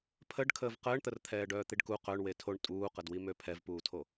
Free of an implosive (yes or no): yes